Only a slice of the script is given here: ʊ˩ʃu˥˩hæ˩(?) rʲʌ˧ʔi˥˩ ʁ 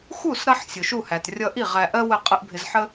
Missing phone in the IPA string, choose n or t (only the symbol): t